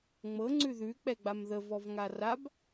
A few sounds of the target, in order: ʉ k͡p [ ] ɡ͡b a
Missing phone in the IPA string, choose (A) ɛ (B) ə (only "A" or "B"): A